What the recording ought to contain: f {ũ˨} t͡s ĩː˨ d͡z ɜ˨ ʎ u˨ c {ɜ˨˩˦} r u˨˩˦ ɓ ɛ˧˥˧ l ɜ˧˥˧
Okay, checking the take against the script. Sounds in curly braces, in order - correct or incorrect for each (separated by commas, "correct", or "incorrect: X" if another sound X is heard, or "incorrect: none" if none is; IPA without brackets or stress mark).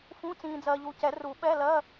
incorrect: ũ˧˥˧, incorrect: ɛ˨˩˦